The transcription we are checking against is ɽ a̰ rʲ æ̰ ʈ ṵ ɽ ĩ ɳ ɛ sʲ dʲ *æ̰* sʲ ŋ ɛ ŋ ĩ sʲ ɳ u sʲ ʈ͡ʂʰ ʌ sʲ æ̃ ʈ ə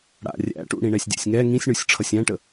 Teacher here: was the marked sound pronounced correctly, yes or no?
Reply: yes